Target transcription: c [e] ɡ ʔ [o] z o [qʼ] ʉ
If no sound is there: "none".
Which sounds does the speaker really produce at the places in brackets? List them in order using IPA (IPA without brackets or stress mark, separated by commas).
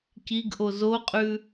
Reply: i, o, qʼ